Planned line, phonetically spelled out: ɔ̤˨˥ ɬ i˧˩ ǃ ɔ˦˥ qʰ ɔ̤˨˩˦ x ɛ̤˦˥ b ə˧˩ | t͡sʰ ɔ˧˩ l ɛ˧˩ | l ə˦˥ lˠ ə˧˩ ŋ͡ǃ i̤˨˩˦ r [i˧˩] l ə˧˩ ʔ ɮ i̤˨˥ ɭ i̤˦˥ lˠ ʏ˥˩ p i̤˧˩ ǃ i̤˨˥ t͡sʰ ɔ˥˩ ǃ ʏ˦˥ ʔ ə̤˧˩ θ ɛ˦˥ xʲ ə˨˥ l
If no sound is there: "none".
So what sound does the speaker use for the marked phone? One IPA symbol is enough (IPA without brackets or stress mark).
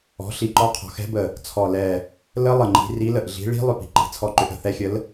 i˨˥